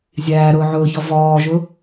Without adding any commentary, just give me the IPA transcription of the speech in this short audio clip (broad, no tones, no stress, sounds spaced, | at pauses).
zʲ æː ɾ ʊː ʕ ʊː ç ɔ v ɔː ʒ ʊ